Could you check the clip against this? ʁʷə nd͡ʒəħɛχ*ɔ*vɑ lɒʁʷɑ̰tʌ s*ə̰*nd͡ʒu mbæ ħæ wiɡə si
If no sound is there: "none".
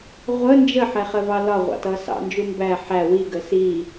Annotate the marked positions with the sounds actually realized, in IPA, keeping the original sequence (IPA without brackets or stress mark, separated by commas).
ə, ɑ̰